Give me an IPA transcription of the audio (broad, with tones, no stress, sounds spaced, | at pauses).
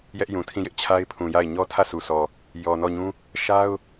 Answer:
j ɛ˦ ʔ j ũ˨ tʰ ĩ˦˨ j ɪ˦ ʔ t͡ɕʰ a˦ ɪ̯ pʰ ũ˨ j a˦˨ ɪ̯ ɲ ɔ˦ tʰ ä˦˨ sʰ u˨ s ɔ˨ | j ɔ˨ n ɔ˦˨ ɲ ũ˦ | ʃ a˦ ʊ̯